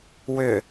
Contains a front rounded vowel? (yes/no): yes